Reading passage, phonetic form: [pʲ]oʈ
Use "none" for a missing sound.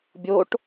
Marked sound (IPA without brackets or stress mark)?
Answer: bʲ